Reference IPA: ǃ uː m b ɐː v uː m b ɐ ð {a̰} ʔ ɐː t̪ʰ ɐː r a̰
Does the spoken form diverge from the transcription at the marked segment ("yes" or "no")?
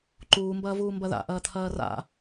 no